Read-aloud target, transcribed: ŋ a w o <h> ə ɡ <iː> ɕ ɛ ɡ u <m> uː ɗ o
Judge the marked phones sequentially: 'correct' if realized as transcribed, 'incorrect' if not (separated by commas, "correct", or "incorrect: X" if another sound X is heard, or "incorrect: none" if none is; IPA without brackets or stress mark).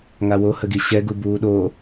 correct, incorrect: i, incorrect: b